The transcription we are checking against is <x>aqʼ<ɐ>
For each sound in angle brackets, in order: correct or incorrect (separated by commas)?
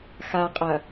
correct, correct